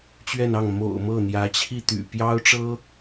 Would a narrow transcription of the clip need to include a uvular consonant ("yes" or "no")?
no